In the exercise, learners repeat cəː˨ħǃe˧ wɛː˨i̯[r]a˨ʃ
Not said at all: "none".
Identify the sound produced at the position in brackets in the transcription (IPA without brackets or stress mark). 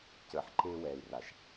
r